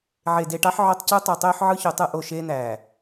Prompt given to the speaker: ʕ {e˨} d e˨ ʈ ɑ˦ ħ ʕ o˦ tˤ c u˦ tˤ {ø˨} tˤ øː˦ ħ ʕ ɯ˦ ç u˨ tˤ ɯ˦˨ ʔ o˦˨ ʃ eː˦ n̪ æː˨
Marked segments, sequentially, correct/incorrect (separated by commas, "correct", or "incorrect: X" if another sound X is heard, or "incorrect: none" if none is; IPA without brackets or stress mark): correct, incorrect: u˨